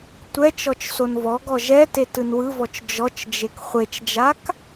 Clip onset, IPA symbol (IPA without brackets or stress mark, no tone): tʷ